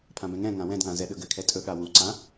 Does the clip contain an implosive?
yes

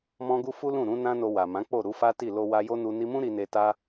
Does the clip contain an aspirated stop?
no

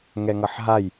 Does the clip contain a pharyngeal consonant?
yes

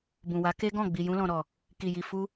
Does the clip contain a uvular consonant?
no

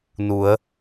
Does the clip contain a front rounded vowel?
no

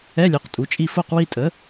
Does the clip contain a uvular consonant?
yes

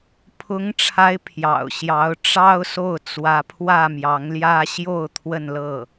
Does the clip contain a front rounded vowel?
no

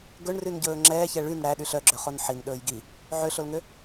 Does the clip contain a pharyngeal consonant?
yes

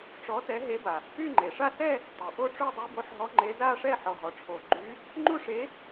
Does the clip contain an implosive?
no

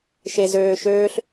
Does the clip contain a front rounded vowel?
yes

